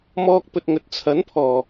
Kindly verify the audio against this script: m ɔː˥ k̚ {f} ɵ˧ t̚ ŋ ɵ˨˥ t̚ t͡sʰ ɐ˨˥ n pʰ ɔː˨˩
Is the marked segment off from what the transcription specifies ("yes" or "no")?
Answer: yes